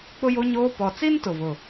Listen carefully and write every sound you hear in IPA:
k͡pʊ˦jo˦ɲoː˦ pɔ˨t͡si˦n tʊ˨vʊ˨

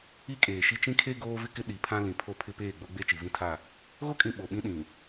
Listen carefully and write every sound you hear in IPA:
i˦kʼeː˨ʃi˦ t͡ʃĩ˦kʰe˦ ɡoː˦vɪ˦kɪ˦ ɗi˨pʰã˦ lĩ˨pʰo˦˨ pʰɪ˦peː˦˨ ɡ͡bo˦ɡ͡be˦ t͡ʃi˨ vĩ˦tʰa˦˨ | ɣo˦kʼĩ˨ ɓo˨ɓĩ˦ ɗĩ˨

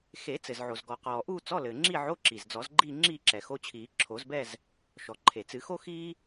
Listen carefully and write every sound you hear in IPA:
xe˨˩˦ t͡sɘ˩zʕo˩zɡɔ˩qɔː˩ ʔuː˥˧t͡sɔ˧˥˧lɘː˩ ŋ͡ǁi˥˧ʕo˧˥˧ǁi˩z d͡zɔ˨˩˦zɡ͡ǃiː˥˧ ŋ͡ǁiː˥˧ǁɛ˩xo˧˥˧t͡ɕʰiː˨˩˦ ǁʰo˨˩˦zbɛ˥˧z | ʃɔ˩ǃʰe˩t͡sɨ˨˩˦xo˥ xiː˥

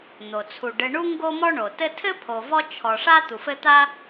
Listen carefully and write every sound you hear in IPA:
n̪o˩ t͡sʰu˩ɖɘ˨ɳu˦ ŋɡo˥mɔ˥ɳo˩ tɘ˥ tʰɘ˥ pʰo˨vɔ˥ t͡ʃʰɔ˨ʂa˥ t̪u˩fɘ˦t̪a˥

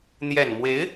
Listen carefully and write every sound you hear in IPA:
n̪jɛ˨˩nmwe˧˥ɪ̯

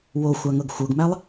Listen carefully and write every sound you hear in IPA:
woxʷaŋɤɡ xʷɤɡmælˠ

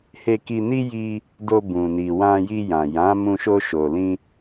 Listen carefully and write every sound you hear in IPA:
he˧ki˧ni˦ ji˧ | do˧bũ˨ni˨ wã˧ji˧jã˨ jã˨˦mũ˧ ʃo˧ʃo˨lĩ˧

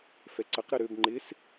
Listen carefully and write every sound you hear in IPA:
fɛǀəq ɾəɾøb ŋ͡ǃɪs

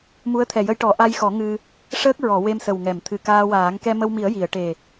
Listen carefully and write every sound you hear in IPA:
mu˧˥ə̯t̪ʰɛ˨˩jə˧jʈɔ˨˩˦ ʔa˧jxɔ˨˩˦ ŋɨ˧ | ʂəː˦˥k̚ɹɔ˨˩˨ we˧msə˨˩wŋɛ˨˩˨m t̪ʰɨ˨˩kaː˧waː˨˩˦ŋ kɛ˧mə˧wmi˨˩˦ə̯ ji˨˩˨ə̯ ʈe˨˩

